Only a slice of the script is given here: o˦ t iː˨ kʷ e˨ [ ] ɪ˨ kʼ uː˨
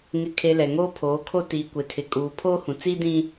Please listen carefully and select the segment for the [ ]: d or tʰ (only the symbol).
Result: tʰ